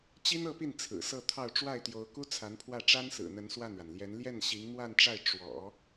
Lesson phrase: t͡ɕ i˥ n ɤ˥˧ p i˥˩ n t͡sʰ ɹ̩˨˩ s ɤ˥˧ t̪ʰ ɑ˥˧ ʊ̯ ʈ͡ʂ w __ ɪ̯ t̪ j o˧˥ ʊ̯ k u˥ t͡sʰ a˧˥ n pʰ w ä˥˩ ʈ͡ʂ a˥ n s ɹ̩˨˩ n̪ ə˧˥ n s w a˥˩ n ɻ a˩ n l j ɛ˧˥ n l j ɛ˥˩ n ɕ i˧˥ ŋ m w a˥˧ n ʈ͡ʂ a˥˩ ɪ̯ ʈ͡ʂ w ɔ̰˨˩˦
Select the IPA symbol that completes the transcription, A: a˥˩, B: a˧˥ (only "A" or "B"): A